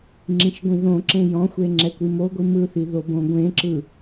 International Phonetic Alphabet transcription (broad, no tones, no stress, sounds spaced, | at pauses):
ŋ͡ǁ ĩ ʃ ɡʷ ĩ ð õ ǁ ẽ j ɔ̃ xʷ e ŋ͡ǁ ɛ kʷ i m o ɡʷ i m ɯ θ i ð o b õ ɡʷ ẽ ǁ ɯ